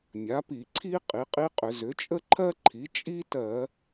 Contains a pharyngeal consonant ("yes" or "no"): no